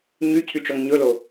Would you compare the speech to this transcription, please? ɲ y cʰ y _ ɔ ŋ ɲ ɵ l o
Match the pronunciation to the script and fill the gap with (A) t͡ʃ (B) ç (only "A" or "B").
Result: A